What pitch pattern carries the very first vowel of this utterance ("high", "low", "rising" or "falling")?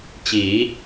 rising